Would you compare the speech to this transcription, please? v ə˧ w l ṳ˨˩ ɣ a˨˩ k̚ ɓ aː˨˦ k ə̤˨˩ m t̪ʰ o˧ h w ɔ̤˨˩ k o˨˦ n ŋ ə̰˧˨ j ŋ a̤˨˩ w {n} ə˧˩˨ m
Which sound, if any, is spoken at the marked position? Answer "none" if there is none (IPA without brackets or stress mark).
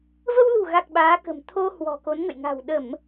ɗ